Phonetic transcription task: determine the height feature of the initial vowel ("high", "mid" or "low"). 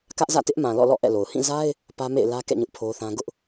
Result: low